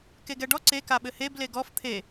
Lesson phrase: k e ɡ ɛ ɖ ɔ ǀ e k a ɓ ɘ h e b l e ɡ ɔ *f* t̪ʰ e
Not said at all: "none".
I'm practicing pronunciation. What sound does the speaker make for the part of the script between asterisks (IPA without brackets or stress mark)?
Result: f